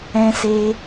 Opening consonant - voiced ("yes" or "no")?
no